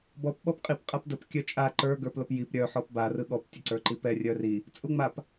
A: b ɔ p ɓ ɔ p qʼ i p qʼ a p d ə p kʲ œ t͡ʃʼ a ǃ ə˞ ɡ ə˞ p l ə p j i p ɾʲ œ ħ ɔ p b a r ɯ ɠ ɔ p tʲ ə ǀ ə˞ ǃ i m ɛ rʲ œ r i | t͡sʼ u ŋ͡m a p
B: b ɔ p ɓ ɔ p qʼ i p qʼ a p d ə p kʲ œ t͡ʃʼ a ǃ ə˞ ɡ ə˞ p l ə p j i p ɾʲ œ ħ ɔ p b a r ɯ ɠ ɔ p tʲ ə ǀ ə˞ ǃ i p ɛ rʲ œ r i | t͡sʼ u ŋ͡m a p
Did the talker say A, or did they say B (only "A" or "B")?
B